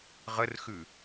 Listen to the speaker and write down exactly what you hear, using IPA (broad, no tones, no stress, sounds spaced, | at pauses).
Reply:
ʁ ə r x ʉ